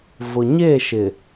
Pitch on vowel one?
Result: low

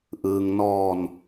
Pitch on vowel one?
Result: low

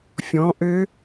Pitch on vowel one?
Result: rising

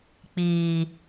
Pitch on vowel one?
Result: low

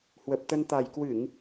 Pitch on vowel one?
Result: low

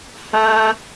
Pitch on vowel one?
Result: high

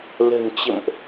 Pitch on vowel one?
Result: low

